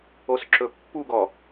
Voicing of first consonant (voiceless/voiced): voiceless